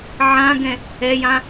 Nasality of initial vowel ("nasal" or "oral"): nasal